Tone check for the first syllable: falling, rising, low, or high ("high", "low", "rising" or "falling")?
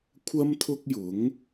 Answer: high